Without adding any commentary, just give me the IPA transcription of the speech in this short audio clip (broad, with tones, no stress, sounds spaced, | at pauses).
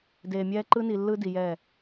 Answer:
d eː˨ mʲ ɛː˦ ǃ ɯ˦ n i˨ lː ɯ˦ d i˨ j ɛ˦˨